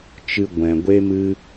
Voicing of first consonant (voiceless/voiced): voiceless